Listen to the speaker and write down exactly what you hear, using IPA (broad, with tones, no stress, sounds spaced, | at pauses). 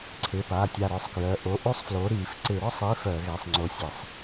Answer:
ǀʰ ɪ˩˧˩ p a˩˧˩ tʲ a˧˩ ɾ œ˧˩ sˤ k j œ˩˧˩ ʔ o˩˧˩ ʔ u˥˧ sˤ f l o˨˥ ɾ i˧˩˧ f ǀ ɪ˧˩˧ ɾ ɔ˥˧ sˤ i˨˥ f œ˧˩˧ ɣ ɛ˩˧˩ sˤ ŋ͡ǀ o˧ sʲ ɛ˧˩˧ sˤ